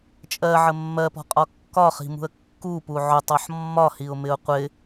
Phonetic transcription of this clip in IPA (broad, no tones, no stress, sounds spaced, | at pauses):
t͡ʃʼ ɜ ʕ ə mː ɜ p ɔ̤ qʼ ɒ kː ɒ χ i̤ m ṳ ə̯ kː u p u ʕ ʊ tˤ ɔ ħ mː ɒ h i ʊ̯ m ɪ ʊ̯ qʷ ɪ